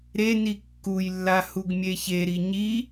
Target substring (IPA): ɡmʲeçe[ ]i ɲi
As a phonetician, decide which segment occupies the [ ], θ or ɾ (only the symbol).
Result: ɾ